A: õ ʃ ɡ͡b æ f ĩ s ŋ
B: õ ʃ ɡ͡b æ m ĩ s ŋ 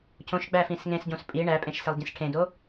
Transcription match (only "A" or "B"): A